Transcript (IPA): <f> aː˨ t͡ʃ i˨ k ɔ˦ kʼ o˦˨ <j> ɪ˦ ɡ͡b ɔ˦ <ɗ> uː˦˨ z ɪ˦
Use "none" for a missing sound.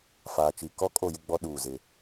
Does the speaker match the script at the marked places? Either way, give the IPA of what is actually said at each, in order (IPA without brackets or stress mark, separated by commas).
f, j, ɗ